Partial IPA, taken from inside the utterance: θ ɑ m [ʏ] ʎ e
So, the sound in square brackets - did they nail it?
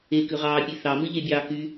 no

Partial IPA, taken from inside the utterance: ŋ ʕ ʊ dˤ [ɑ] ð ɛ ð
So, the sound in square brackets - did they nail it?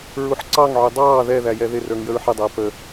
no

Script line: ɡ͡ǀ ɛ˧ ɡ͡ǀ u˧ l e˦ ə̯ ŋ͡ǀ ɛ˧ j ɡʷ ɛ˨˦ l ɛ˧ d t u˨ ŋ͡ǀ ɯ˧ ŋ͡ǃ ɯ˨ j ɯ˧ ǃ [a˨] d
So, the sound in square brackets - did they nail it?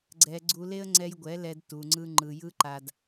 yes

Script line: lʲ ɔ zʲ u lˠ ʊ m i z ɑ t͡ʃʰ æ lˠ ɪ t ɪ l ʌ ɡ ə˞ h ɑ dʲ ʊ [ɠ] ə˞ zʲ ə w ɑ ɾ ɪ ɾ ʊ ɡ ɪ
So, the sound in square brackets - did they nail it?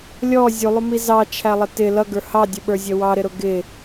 no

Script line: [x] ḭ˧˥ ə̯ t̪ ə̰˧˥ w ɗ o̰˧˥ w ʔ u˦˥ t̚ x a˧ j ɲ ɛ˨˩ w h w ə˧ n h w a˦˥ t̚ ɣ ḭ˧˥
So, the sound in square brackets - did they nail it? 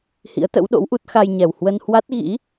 no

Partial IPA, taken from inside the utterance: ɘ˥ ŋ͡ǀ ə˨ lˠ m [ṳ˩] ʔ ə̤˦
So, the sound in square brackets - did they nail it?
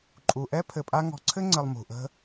yes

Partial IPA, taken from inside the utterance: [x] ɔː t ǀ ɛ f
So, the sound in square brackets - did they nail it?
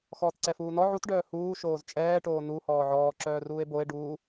yes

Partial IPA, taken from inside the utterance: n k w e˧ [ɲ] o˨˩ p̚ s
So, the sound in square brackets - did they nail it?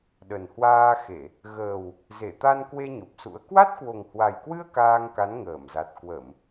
yes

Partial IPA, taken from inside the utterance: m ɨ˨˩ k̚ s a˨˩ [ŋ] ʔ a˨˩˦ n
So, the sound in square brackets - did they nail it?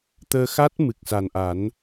no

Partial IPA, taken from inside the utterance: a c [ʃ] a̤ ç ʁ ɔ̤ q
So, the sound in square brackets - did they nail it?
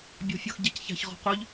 no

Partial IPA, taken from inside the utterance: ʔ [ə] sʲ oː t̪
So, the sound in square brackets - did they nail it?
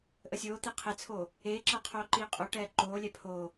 yes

